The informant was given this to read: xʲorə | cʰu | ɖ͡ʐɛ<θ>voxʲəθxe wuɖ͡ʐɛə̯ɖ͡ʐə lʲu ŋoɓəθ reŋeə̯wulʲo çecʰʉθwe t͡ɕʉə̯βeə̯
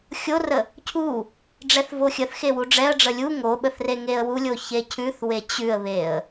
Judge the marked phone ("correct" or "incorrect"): correct